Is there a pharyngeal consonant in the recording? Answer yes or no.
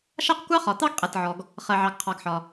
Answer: yes